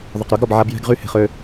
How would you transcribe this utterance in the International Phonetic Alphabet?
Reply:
ðˤ ʊ˨ q ɾ y˨˦ ɡ ɾ ɔ˨ b ʕ a˦ b j ɛ̤˦ ɡ ʁ y˦ h e̤˨ χ ø˦

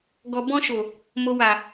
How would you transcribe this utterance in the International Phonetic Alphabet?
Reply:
ɡ ɔ˨ b ɔ̃˧ ʃ o˨ | m o˨ w a˨

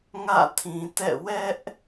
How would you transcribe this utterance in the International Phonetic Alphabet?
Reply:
ŋ ä̰˦˨ tʰ ĩ˨ t ɛ̰˦˨ w ɛ˦ ʔ

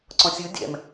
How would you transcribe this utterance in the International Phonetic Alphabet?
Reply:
ǀ ɔ̃ sʲ ɯ dʲ ɛ̰ m

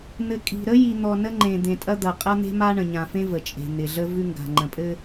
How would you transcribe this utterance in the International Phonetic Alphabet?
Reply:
n̪ ɘ˨ kʼ i̤˨ ɾ ə˦ j i˨ n̪ ɔ˨ n ə˦ ŋ͡ǃ ẽ˨ d̪ ẽ˨ tʼ ɐ˦ d̪ ɐ˨ qʼ ɐ˦ n̪ e̤˦ m a˦ ɳ ə̃˨ ɲ ã˨ f ẽ˦ v ə˨ t͡ʃʼ e̤˨ n̪ ɪ˨ ɮ ə˦ v ʉ˦ ŋ ɡ a̤˨ ŋ͡ǃ ə̃˨ pʼ ɘ˦

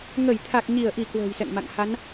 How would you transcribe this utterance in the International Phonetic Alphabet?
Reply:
ŋ ə˧˩ j t̪ʰ a˨˩ k̚ ɲ i˧˩ ə̯ ʔ i˧˩ k w ə̤ː˨˩ j s ɛ̰˧˨ ŋ m a̰˧˨ ŋ h a˨˦ n

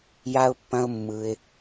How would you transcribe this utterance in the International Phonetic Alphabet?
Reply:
j a˦ ʊ̯ pː ɐ̃˦ ʊ̯ mː ɯ˧ ɪ̯

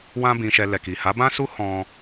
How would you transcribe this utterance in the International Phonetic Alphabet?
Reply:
w ã˦ b ĩ˧ ʃ ɛ˧ l ɛ˨ k i˨ h a˨˦ b ã˦ s u˦ h ɔ̃˦

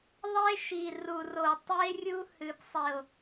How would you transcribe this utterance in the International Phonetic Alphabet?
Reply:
ðˤ e˦ ʃ i˨ r u˨ r o˨ tˤ i˦ e̯ rʲ u˦ h ɨ˨ b sˤ e˨ o̯

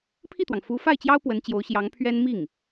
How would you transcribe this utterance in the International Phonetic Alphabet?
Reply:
pʰ i˥˩ t̪ w ɑ˩ ŋ f u˧˥ f a˥˩ ɪ̯ t͡ɕ j ɑ˥ ʊ̯ p w ə˧˥ n t͡ɕ j o˧˥ ʊ̯ ɕ j ɑ˧˥ ŋ pʰ ɥ ɛ˥ n m i˥˩ ŋ

